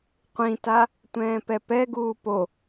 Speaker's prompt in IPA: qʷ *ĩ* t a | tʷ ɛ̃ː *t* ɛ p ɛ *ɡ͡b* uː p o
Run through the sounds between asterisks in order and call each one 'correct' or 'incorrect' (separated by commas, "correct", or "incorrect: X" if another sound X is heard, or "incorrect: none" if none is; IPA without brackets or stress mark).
correct, incorrect: p, incorrect: ɡ